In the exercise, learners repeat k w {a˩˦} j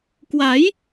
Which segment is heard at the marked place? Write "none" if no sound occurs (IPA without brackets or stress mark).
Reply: a˩˦